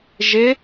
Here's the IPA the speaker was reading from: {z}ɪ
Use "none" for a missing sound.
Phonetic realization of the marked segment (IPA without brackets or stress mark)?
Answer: ʒ